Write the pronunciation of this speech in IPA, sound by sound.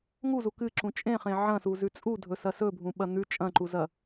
ŋ u z u k ɨ ǁ ũ t͡ʃʼ ẽ χ ẽ ʕ ɐ̃ s u z ʉ t͡sʼ u dʱ ɵ s ɐ s ɵ bʱ ũ ɓ ɐ n̪ ʉ t͡ʃʼ ɐ̃ ǃ u z ɐ

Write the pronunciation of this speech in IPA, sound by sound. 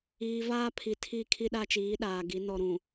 iː˨ v aː˦ pʰ i˨ tʰ i˦˨ kʰ i˦ ɗ a˦ t͡ʃ iː˨˦ ɗ aː˨ ɡ i˨˦ n ɔ˨ ɾ ũ˨

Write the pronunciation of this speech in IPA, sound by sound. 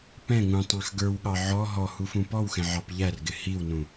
p ɛ̃ ŋ ũ tˤ ɑ̃ x ɡ ə˞ w ɠ ɑ ʕ ɔ ɦ ɔ h u f ũ p ɔ w x ɛ̃ ʕ ɑ p ʎ æ r ɡ ɪ h i w n ũ

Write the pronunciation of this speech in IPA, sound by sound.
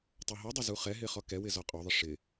tˤ o ɦ u dˤ ʊ z u χ ɛ ɦ ɪ χ ɔ k ɛ w ɪ z ɔ qʼ o ðˤ ɪ ʂ ɪ

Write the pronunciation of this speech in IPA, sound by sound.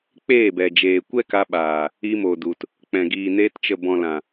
k͡p eː˦˨ b ɛ˨ d͡ʒ eː˨ kʷ ɛ˦ k a˧ ɓ aː˨ | i˧ m o˨ d u˨ t | k͡p ɛ̃˨ ɡ iː˨ n eː˧ t t͡ʃ ə˨ b ɔ̃˨ l ã˨

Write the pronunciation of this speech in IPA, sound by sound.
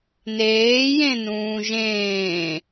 n eː j ẽ n ũː ʒ ẽː

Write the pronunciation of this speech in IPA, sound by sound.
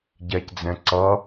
ɟ ɛ c d͡z ɛ̃ ǀ ʌ

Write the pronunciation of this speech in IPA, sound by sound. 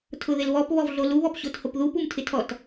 tʰ ʊ ð ɪ l β ɔ p β ɔ v ɮ o l u β ɔ p ɕ o t h o p ð u p u m tʰ ɪ tʰ ɔ t

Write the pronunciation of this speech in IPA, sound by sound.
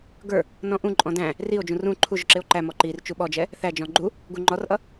ɡ ə˞ | n ɔ̃ ʔ ũ ǃʼ ɔ̃ d æ̃ | r i o̯ d͡ʒ ũ r ũ ǃʰ u ʒ ʊ ǁ ɪ o̯ ǃ æ m ɔ ǃ i r t͡ʃ u ɓ ɔ d͡ʒ ɛ | θ æ d͡ʒ ɔ̃ ɡ͡ǃ u | ɡ u ŋ͡ǃ ɔ r ʔ ʌ

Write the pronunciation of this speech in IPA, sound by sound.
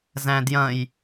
z æ̃ d j ɐ̃ j

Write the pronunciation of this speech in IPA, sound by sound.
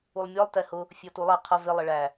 u lˠ mʲ ɔ lˠ t ɛ h ʊ | fʲ ɔ t u lˠ ɑ qʰ ʌ v ɪ lˠ ɪ ɭ æ

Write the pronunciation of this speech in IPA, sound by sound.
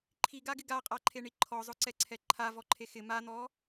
ǃʰ i ɡ a ɡ ɪ ɡ a qʼ a ǃʰ e ɳ i ǃʰ ɔ zˤ ʊ ǀ ɛ ǀʰ ɛ ǃʰ a v ɔ ǃʰ e x ɪ m a n̪ ɔ

